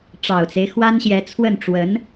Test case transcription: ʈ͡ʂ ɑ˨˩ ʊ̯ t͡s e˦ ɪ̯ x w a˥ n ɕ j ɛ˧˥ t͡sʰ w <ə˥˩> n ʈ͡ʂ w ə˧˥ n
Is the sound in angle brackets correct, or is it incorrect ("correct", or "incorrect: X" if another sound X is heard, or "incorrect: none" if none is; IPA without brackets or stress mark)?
correct